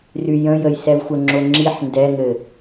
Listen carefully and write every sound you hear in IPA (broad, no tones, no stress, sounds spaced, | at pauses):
r y j ə̃ j ə j s ɛ v xʷ ə ŋ͡ǁ o ŋ͡ǁ i ħ n d ɛ ŋ ɘ